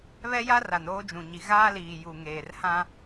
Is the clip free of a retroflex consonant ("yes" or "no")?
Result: yes